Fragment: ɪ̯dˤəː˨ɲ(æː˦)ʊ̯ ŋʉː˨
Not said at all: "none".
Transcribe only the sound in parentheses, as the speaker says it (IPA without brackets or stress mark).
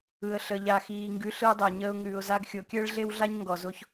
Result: əː˦